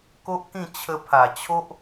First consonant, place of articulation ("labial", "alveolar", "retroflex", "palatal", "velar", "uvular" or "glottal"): velar